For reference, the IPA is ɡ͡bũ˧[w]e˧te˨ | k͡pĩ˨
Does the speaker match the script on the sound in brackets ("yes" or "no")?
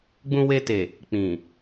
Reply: yes